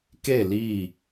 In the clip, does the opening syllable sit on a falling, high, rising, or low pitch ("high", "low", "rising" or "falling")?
falling